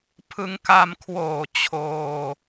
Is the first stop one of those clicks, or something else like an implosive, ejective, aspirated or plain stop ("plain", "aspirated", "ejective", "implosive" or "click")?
aspirated